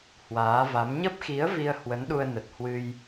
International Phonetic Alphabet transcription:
h w aː˨˦ v a˨˦ m ɲ ə˦˥ p̚ x i˨˦ ə̯ v i˧ ə̯ h w ə˨˦ n ɗ u˧ ə̯ n ə˨˩ t̚ h w ɨ˧ j

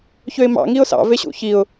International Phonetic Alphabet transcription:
ç ø ɪ̯ m ɑ̰ ŋ i ʊ̯ s ɑ̰ v e ɕ ṵ ç i ʊ̯

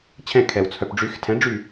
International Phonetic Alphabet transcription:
t͡ɕʰ ɛ̃˦˨ kʰ ɛ˨ w t͡sʰ œ˨ p ɖ͡ʐ y˨˥ x tʰ ɛ̃˨˥ ɖ͡ʐ y˦˨

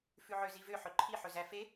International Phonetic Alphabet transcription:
f ʉ ʕ ø z i v ø ħ ɵ ǃʰ i ħ ɵ z æ f e

